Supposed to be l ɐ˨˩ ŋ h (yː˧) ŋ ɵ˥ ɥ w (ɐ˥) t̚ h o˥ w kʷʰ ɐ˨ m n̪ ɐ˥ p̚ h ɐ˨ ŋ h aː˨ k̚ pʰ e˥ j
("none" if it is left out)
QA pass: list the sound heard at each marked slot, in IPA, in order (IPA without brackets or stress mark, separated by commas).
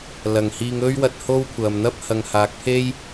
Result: iː˧, ɐ˧